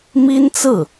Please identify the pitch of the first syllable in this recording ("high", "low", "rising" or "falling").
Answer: high